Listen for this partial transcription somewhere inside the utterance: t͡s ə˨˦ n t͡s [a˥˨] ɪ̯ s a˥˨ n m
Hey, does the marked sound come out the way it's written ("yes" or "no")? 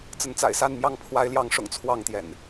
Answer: no